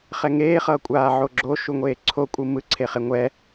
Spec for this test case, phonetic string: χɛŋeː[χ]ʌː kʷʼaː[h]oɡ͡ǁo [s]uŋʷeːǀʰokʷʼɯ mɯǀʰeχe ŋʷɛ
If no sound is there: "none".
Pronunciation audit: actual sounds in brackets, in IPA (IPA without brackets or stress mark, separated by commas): χ, ʕ, ʃ